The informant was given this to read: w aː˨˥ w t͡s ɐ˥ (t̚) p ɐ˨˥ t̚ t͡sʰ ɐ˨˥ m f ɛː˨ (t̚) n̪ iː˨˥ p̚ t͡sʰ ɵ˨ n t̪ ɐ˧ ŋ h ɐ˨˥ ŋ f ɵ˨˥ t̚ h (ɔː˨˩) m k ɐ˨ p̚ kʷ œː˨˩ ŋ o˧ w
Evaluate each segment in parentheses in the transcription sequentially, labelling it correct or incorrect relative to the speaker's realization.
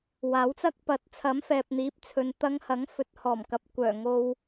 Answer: incorrect: k̚, incorrect: p̚, correct

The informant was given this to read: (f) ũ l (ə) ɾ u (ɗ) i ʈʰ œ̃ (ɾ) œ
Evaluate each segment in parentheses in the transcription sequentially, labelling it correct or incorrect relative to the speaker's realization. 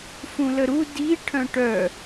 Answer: correct, correct, incorrect: d, incorrect: ʈ

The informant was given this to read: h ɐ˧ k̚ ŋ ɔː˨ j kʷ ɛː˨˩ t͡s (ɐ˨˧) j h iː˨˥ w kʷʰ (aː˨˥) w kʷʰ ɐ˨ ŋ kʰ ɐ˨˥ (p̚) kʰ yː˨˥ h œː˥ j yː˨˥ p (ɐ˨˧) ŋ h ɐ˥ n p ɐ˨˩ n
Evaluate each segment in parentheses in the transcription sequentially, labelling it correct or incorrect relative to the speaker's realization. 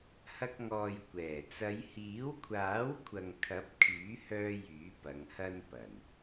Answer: correct, correct, correct, correct

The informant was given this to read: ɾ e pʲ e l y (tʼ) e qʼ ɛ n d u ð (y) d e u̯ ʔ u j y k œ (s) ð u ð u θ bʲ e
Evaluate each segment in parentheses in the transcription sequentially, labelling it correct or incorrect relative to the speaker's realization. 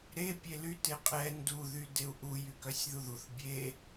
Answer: incorrect: t, correct, incorrect: sʲ

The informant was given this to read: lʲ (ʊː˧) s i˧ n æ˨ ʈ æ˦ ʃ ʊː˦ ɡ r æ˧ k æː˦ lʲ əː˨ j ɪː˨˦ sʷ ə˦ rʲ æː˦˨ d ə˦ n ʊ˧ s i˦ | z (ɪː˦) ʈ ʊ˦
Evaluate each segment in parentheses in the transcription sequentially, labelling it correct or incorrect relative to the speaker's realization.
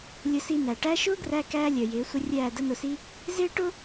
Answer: incorrect: ʊ˧, correct

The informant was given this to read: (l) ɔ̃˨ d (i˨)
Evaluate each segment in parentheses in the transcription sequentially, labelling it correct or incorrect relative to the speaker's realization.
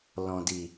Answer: correct, correct

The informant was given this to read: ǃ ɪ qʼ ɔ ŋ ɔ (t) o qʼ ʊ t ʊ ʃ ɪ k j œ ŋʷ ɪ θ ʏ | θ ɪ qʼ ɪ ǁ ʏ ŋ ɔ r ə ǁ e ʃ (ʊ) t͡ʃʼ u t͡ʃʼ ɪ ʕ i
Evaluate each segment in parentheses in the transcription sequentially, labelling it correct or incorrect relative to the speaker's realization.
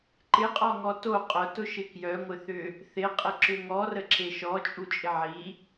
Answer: correct, incorrect: ɔ

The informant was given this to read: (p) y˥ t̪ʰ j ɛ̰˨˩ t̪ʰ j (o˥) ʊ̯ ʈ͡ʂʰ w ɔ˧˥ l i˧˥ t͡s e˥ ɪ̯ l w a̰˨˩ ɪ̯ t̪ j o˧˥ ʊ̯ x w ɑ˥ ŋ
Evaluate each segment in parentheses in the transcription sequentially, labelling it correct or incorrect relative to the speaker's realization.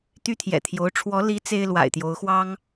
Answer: incorrect: t̪, incorrect: o˧˥

